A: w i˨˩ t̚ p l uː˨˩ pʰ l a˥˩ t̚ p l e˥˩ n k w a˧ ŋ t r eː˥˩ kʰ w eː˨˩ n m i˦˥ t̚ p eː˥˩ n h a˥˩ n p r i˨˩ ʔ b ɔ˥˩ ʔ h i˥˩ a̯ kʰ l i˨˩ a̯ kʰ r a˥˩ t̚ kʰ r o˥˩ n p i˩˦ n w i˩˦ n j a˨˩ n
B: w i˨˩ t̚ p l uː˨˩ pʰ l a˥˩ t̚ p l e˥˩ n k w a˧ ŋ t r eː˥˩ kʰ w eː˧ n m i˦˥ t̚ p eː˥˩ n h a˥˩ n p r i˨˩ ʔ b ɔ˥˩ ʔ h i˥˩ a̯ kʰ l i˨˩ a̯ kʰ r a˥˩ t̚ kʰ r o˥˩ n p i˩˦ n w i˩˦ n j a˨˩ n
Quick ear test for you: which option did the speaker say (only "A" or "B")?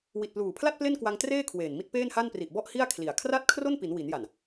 A